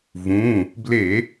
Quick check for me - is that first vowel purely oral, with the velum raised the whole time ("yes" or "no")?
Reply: no